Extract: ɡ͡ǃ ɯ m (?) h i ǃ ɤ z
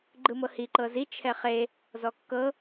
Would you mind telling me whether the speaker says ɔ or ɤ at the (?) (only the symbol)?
ɤ